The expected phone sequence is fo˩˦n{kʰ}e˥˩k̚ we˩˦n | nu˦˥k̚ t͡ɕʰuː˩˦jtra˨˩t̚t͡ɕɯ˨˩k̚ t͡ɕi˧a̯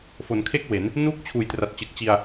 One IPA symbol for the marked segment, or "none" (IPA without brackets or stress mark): kʰ